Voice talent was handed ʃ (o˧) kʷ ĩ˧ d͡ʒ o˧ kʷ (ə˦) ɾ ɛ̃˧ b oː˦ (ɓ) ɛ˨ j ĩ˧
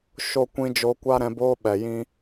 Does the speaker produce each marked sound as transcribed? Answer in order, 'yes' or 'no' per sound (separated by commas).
yes, no, yes